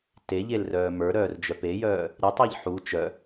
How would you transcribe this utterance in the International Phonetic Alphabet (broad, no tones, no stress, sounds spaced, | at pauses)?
t e ʎ e l r œː m ə˞ ɾ œː r d͡ʒ œ p e j œː | ɾ i tˤ e ʎ ħ u t͡ʃ œ